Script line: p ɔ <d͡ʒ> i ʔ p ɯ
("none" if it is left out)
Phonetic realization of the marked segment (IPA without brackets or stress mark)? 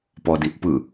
d